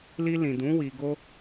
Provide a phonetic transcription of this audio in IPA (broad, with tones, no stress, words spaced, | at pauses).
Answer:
li˧lĩ˨dũ˨˦ wi˧ɡo˦